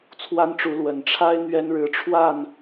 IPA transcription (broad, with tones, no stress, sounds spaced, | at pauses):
t͡sʰ w a˥ n ʈ͡ʂ u˧˥ l w ə˨˩ n ʈ͡ʂʰ a˥ ɪ̯ n̪ ɥ ɛ˥ n ɻ ɻ̩˧˥ ʈ͡ʂʰ w a˥˩ n